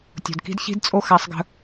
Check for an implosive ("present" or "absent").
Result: absent